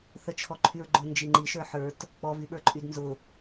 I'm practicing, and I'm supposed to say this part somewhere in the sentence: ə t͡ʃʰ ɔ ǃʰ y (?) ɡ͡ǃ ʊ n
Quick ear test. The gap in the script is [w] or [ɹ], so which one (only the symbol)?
ɹ